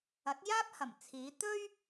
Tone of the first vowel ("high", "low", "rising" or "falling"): rising